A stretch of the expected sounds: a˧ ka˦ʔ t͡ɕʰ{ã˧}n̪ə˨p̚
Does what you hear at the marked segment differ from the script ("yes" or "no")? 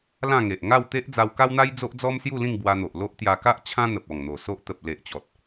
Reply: yes